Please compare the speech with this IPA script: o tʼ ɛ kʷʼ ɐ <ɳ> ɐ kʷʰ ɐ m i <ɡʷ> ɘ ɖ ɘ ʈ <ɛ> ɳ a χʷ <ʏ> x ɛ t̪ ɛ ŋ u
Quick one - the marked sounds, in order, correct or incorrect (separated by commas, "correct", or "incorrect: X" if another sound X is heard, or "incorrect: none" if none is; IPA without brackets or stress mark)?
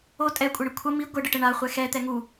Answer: correct, correct, incorrect: ɘ, incorrect: ɛ